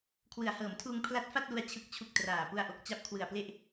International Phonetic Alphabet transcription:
kʰ w ɯ˩˦ a̯ h ɤː˩˦ m tʰ uː˧ ŋ pʰ l a˦˥ t̚ f a˥˩ t̚ l u˧ a̯ t͡ɕʰ ɯ˨˩ k̚ t͡ɕʰ u˨˩ k̚ t r aː˨˩ p u˧ a̯ ʔ o˨˩ k̚ t͡ɕ a˦˥ p̚ kʰ w ɯ˨˩ a̯ p l e˥˩ ʔ

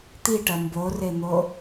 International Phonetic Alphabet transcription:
t̪ i ʈ ɐ m b o r e n̪ o

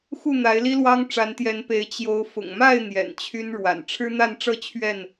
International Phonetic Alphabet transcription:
x u˥˨ n̪ a˨˦ ɪ̯ l i˦ l w ɑ˦ ŋ ʈ͡ʂ a˨˦ n t̪ j ɛ˨˦ n p e˨˦ ɪ̯ t͡ɕ j o˨˦ ʊ̯ f ʊ̰˨˩ ŋ m a˥˨ ɪ̯ n̪ j ɛ̰˨˩ n t͡ɕʰ y˦ n ɻ w a̰˨˩ n ʈ͡ʂʰ ɻ̩˦ n̪ a˥˨ n ʈ͡ʂ ɤ˥˨ t͡ɕʰ ɥ ɛ˥˨ n

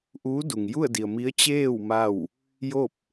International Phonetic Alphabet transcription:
ʔ uː˧˥ d u˩ ŋ j u˥˨ ə̯ d i˩ ə̯ m i˧˥ ə̯ t͡ɕ eː˥˨ w m a˥˨ w | j o˥˨ p̚

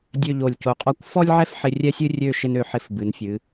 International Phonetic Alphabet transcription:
dʲ ø˥˧ ʎ o˧˩ lʲ c o˧˩ qʼ ɔ˥˧ kʷ f ɔ˥ lʲ ʕ ɛ˥ f ħ ɪ˧ rʲ ɛ˥ sʲ ɨ˥ rʲ ø˥˧ ʃ ɪ˥ n ø˧ ħ ɪ˧ f b ɨ˩˧ n fʲ ɨ˩˧

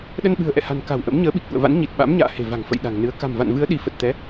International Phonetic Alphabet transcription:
ɗ ə˧ n ɓ ɨ̤˨˩ ə̯ ʔ ɛ̰˧˨ h a̤˨˩ n k a̤˨˩ w ʔ ə̰˧˥ m ɲ əː˨˦ ɓ i˨˩ k̚ ʔ ṵ˧˨ ə̯ v a̰˧˥ n ɲ i˨˩ t̚ ɓ a̰˧˥ m ɲ a̰ː˧˨ h e̤˨˩ v a̤˨˩ ŋ f ə̰˧˨ j ɗ a̤˨˩ ŋ n ɨ˨˦ ə̯ k a̤˨˩ m v a̰˧˨ n v ɨ˨˦ ə̯ ɗ i˨˦ f ə˨˩ t̚ t̪ ɛ˨˦

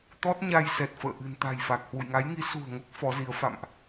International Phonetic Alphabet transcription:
t̪ ɔ˦˥ t̚ ɲ a˧ j s ɛ˨˩ t̚ f ə̰ː˧˨ ʔ ɨ̤˨˩ n t̪ a̤˨˩ j f a˨˩ k̚ h w ṵ˧˨ j ŋ a˨˦ j ŋ i˨˦ s ṳ˨˩ ə̯ ŋ o˦˥ k̚ f ɔ˨˦ z i˨˦ ə̯ f a̰˧˨ m ʔ

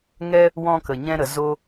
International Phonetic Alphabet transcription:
ŋ ɛ˦ | w ɔ̃˧ k ə˨ ɲ ɛ̃˧ ɾ ə˨˦ z o˧

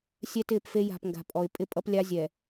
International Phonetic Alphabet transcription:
sʲ ɛ˦ t ɪː˦˨ p f e˦ j a̤˨ p ŋ ɡ a̤˨ pʼ ɔ˨ ɪ̯ pʼ ɪ˦ pʼ ʌ˦ p lʲ a˦ zʲ ɛ˨

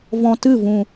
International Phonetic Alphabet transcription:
v ɔ̃˧ t ɨ˦˨ v ũ˨

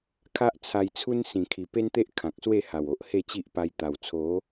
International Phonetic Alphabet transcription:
kʰ a˦ ʔ t͡sʰ a˧ j t͡sʰ u˦ n s ĩ˨˩ kʰ i˨˩ p e˦ n t̪ e˦ ʔ kʰ ã˨ k̚ s w e˥˧ h a˨˩ w o˨ ʔ h e˥˧ t͡ɕ i˦ ʔ p a˧ j t̪ a˨˩ w t͡sʰ o˨˦

